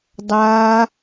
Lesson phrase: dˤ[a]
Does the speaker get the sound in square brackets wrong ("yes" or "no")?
no